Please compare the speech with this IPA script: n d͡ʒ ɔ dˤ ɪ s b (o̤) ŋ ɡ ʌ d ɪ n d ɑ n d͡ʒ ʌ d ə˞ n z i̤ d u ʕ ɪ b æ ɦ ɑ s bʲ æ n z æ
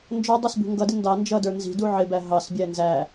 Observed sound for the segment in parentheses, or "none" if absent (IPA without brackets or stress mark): ṳ